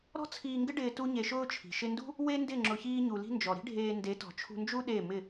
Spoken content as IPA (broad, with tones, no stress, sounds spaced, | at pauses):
ɾ ɔ̤˦ t͡sʰ iː˧ ŋ ɡ ɪ˦ ɖ ɪː˧ t u˦ ɲ e˧ ʃ ʊː˦ t͡ʃʰ i̤˨ ʃ ɪ˧ n d ṳ˦ | w e˦ n d ɪ˦˨ ŋ͡ǁ ʊ˧ ç iː˦ ɲ u˧ l i̤˦ n d͡ʒ ɔ˨ ɾ i̤˦ ɖʱ eː˧ n d e˨˦ t ɔ̤˨ t͡ʃʰ ṳ˧ n d͡ʒ u˦ ɗ e˦˨ m ɪ˦˨